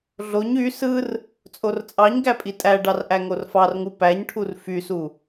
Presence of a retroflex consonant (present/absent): present